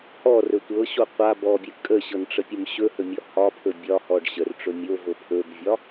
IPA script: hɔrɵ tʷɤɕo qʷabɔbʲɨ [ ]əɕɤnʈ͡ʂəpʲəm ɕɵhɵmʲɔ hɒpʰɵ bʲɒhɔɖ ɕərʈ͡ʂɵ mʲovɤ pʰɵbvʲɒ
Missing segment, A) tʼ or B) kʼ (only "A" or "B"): B